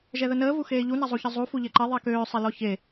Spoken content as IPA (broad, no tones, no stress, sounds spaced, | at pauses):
ʒ ɛ ð ə n əː v u x eː ʎ u n a zˤ u ç ə zˤ u f u ʎ e ǃ ɛ ðˤ ɛ k øː sˤ ɛ l ɔ ç e